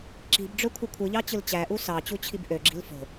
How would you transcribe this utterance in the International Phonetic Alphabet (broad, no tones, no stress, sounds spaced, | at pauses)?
ǁ i̤ b ɖ͡ʐ ø kʷʰ ɯ kʷʰ ɯ ʎ ɑ t͡ɕ ɯ l t͡ɕ æ ʔ u s ɑ t͡ɕ u t͡ɕʰ i b ʔ ø ɡ͡ǁ i̤ l f o̤